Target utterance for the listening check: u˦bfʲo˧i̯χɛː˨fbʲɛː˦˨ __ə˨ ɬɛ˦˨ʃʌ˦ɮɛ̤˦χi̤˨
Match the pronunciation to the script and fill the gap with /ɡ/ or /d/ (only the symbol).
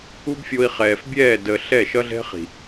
d